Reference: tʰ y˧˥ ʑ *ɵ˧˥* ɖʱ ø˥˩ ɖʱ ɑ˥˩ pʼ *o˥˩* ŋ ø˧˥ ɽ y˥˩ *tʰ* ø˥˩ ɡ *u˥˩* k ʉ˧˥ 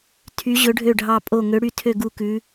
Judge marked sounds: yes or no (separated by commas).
yes, yes, yes, yes